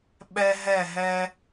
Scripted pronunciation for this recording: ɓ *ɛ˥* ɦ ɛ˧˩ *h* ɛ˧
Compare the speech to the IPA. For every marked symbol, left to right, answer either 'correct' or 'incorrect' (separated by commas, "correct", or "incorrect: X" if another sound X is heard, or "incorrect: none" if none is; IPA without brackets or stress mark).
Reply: incorrect: ɛ˧, incorrect: ɦ